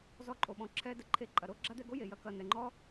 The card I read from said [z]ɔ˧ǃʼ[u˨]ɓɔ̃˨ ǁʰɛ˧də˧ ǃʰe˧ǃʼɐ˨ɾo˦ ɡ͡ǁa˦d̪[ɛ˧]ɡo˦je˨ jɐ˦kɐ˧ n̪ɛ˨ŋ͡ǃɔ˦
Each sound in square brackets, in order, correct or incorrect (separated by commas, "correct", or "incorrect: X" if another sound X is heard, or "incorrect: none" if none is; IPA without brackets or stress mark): correct, incorrect: o˨, correct